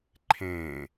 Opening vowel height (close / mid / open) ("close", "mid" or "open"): mid